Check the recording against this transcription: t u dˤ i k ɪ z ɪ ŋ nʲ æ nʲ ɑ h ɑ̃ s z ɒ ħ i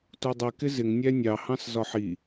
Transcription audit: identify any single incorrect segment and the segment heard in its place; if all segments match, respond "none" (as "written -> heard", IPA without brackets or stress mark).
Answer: none